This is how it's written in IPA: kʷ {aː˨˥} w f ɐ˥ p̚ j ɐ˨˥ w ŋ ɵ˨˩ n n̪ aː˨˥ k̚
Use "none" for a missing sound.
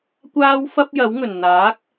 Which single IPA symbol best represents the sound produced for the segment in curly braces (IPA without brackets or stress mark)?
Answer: aː˥